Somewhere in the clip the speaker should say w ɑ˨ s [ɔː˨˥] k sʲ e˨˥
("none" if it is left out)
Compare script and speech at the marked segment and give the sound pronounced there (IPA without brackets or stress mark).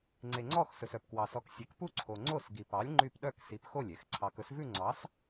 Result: ɔ˨˥